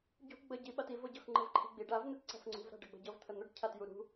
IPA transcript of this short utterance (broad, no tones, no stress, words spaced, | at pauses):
ɟṳ ɡ͡bəɟi ɓativɤɟɤx ŋ͡ǃəvǃʰi̤ɡ͡biɖ avn̪ɘt ǀa̤fŋ͡ǀṳvɾa̤ ɖəɡ͡bə̤ɟɤv t̪ʰən̪əɖ cʰatjuɾṳ